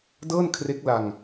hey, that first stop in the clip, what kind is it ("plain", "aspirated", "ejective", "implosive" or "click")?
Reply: plain